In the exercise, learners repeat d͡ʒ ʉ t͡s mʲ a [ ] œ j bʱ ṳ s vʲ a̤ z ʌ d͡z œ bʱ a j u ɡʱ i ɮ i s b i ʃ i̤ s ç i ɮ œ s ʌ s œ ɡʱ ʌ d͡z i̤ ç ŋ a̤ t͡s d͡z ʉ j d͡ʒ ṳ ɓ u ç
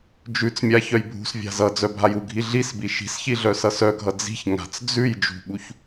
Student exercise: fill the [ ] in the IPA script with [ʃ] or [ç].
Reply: ç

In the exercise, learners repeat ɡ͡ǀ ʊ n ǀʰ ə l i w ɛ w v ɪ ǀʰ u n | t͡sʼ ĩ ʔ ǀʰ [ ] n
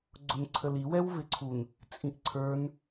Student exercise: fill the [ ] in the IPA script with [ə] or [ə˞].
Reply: ə˞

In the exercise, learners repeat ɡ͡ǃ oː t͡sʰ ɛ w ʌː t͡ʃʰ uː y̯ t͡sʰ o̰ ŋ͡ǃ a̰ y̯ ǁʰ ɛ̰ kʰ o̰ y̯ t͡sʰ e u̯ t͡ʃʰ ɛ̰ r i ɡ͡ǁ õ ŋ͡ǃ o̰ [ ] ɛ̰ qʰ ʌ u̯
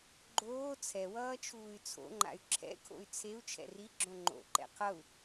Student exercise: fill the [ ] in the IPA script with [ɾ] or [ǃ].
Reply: ǃ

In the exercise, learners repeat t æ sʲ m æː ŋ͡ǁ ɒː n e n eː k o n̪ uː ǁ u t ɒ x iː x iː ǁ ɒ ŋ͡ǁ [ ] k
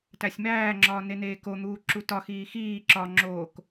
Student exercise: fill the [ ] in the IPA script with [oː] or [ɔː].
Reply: oː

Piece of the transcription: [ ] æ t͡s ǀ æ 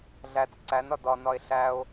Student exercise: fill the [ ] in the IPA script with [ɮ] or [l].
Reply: ɮ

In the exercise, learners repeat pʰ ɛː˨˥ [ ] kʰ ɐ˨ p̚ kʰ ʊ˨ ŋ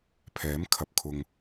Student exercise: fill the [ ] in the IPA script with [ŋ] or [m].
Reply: m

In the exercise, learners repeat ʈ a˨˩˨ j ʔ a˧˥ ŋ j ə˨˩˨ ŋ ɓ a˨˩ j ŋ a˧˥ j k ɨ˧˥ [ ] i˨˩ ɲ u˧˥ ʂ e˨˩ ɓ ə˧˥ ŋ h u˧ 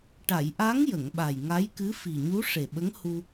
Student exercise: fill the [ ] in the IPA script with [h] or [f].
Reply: f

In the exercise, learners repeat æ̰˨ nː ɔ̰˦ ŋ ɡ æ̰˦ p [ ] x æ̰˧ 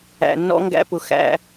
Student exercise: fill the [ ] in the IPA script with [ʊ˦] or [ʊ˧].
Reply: ʊ˧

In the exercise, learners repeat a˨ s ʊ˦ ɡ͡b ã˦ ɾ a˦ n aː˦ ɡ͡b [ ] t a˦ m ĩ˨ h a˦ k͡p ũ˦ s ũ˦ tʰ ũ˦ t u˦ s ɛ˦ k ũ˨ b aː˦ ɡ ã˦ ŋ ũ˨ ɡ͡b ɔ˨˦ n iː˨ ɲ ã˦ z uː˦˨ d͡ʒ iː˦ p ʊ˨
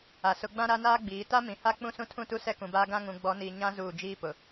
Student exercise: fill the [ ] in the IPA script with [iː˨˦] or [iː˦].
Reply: iː˨˦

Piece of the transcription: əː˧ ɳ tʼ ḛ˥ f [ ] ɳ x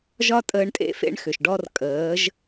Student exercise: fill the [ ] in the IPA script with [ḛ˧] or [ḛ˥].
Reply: ḛ˥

